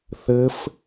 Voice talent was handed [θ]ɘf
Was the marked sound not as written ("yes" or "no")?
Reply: no